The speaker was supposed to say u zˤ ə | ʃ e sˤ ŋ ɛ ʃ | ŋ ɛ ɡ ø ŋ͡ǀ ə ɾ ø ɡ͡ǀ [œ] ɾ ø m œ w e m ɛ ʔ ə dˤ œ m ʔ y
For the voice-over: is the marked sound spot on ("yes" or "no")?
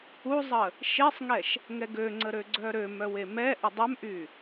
yes